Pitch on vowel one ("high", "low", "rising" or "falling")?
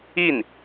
falling